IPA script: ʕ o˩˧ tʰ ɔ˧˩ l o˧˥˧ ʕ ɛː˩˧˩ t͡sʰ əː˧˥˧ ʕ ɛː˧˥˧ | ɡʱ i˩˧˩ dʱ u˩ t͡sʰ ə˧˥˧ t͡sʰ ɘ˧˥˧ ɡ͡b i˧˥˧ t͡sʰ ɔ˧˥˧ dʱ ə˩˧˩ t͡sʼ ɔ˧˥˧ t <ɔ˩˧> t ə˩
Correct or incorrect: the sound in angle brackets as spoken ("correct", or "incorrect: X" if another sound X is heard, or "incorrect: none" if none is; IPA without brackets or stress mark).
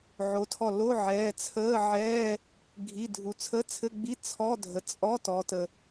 correct